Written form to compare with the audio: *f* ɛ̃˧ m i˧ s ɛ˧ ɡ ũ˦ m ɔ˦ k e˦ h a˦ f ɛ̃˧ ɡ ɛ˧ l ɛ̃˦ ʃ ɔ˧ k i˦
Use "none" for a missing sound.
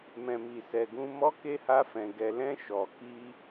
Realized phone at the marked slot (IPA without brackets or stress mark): m